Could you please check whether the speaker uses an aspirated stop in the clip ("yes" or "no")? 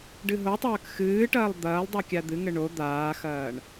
no